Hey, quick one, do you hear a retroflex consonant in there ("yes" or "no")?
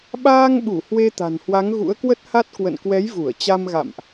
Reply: no